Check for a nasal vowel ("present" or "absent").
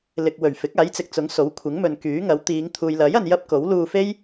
absent